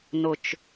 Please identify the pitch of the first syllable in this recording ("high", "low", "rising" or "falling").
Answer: low